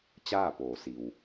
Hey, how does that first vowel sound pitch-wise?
falling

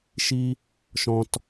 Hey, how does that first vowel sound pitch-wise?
high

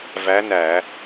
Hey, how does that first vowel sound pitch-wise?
rising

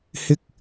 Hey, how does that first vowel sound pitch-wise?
high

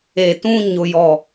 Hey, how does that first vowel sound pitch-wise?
low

